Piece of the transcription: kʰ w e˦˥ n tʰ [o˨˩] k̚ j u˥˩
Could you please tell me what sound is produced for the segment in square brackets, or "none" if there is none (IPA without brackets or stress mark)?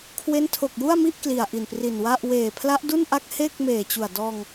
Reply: o˨˩